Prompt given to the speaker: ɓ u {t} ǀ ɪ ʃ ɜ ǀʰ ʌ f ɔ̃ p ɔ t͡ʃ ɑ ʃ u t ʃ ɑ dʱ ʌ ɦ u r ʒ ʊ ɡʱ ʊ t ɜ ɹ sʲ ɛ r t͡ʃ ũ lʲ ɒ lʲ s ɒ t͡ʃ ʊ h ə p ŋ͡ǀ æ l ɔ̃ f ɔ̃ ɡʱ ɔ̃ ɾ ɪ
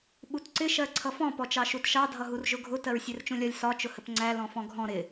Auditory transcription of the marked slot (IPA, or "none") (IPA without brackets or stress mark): t